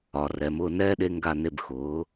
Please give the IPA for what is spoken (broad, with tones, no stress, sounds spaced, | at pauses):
ɒ˩˧ r ɛ˩˧ m ʊː˧ n ɛː˥ ɗ e˧ ŋ ɡ a˧˩ n e˧˩ b x ʊː˩˧